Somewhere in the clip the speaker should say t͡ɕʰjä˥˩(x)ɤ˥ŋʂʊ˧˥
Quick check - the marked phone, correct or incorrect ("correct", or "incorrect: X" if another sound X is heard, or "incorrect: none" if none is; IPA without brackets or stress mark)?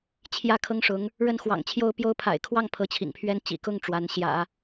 incorrect: kʰ